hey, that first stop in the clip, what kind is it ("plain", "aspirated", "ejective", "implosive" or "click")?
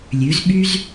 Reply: implosive